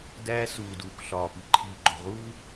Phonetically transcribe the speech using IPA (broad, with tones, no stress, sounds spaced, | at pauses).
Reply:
d æː˦ s uː˨ d uː˨ k ɬ ɒː˨ p i˨ ǃʰ iː˨ ɡ͡ǃ o̤˨ ʁ uː˦